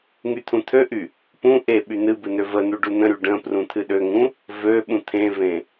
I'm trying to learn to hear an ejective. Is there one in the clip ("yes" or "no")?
no